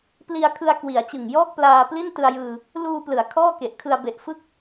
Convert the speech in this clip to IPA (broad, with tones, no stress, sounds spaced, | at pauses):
p l i˧ a̯ kʰ ɯ˧ a̯ k w i˩˦ a̯ t͡ɕ ɯ˨˩ ŋ j ɔː˥˩ k̚ p l aː˧ p l i˥˩ n t ɯ˧ a̯ j ɯː˧ | l uː˧ p l ɯ˩˦ a̯ kʰ ɔː˥˩ k e˨˩ ʔ kʰ ɯ˧ a̯ b e˨˩ ʔ f ɯ˥˩ k̚